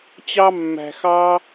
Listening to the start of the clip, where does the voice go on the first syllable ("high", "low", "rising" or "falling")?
high